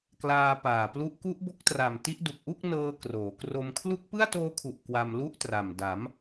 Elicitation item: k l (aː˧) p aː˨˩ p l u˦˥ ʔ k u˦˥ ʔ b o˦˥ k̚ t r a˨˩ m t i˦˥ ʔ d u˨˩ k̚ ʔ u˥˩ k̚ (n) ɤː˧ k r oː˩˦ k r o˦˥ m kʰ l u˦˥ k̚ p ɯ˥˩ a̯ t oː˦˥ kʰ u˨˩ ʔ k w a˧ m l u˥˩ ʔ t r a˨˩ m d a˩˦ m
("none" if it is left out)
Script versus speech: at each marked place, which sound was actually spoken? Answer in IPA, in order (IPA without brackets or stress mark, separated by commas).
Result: aː˧, n